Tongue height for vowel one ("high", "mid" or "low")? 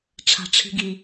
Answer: low